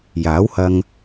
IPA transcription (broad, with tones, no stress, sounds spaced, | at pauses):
j aː˨˥ w h ɐ˧ ŋ